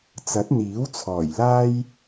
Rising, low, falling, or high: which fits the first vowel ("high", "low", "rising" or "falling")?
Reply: rising